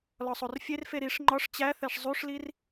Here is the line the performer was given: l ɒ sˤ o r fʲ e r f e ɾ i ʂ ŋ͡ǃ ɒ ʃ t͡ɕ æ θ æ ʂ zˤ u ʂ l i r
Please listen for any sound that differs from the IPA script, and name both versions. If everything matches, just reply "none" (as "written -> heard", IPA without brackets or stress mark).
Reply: ʃ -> ʂ